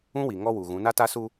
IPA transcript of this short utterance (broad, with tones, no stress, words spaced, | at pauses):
ũ˦wi˨ ŋɔ˦wu˨ɣũ˨˦ na˦ta˦su˦